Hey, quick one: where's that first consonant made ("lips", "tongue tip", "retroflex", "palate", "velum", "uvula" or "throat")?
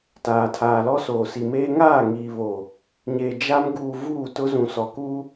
tongue tip